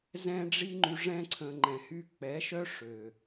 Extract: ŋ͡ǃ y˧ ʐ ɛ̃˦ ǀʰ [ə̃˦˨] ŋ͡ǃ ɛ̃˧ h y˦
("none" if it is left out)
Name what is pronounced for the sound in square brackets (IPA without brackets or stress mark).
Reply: ə̃˧